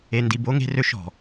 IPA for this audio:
e˨ n d i˨ b o˦ ŋ e̤˦ r ø˦ ʃ ɔ̤˨

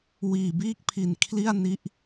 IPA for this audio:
w iː˨˩ b iː˥˩ k̚ pʰ i˨˩ n kʰ l i˥˩ a̯ n i˦˥ ʔ

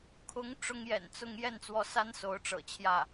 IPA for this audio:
kʰ ʊ˧˥ ŋ ʈ͡ʂ ʊ˥ ŋ j ɛ̰˨˩ n t͡s ʊ˥ ŋ j ɛ˥˩ n t͡s w ɔ˧˥ s a˥ n s o˧˥ ʊ̯ ʈ͡ʂ ɤ̰˨˩ t͡ɕʰ j ä˥˩

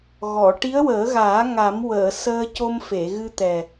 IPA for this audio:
ɣ ɔ˨˩˨ ʈ i˧˥ ə̯ w əː˨˩˦ ɣ aː˨˩˦ ŋ a˨˩˦ m w əː˨˩˨ s əː˧ c o˧ m f e˨˩˨ ɣ ɨ˧ t̪ ɛ˨˩

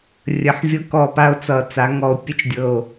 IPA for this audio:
rʲ ə˨˩ ħ vʲ ɤ˧ k ɔ˨˩ p a˧ o̯ t͡s ʌ˨˩ t͡s a˩˧ ŋ ɔ˨˩ o̯ pʲ ə˧ t͡ʃ dʲ ɤ˨˩ o̯

